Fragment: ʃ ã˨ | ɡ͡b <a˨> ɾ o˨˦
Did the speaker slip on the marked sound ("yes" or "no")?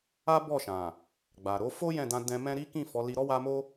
no